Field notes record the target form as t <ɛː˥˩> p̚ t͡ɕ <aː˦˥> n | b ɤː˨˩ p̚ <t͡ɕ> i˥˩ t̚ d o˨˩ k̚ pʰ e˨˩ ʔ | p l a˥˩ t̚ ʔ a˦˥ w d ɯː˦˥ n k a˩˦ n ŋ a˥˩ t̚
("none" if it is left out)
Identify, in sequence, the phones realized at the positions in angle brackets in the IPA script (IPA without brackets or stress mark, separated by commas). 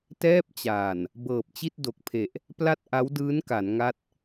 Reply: ɛː˥˩, aː˨˩, t͡ɕ